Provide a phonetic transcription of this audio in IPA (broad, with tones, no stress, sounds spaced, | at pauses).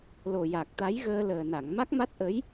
l o˨˩ j a˨˩ k̚ t̪ a˧˥ j ɣ əː˧ l əː˨˩ n a˨˩˨ ŋ m a˦˥ k̚ m a˦˥ t̚ ʔ ə˧˥ j